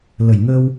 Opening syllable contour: low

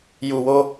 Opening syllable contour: low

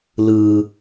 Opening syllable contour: low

